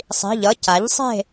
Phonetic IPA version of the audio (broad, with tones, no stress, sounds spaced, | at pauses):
sˤ i̤˧˥˧ ʎ ʌ˧˥˧ c a˨˥ ʎ sˤ e̤˥˧